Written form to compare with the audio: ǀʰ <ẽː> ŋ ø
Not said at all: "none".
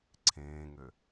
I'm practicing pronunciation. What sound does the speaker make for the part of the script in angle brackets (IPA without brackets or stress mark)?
ẽː